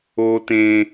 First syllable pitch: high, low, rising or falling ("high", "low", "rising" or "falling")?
low